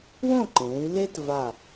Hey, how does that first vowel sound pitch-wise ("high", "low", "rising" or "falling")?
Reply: falling